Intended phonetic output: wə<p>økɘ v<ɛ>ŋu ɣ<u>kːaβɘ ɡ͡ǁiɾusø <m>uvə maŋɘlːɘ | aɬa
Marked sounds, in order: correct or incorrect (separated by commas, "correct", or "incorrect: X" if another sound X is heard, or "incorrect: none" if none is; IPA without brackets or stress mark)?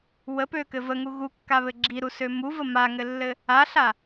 correct, incorrect: ə, correct, correct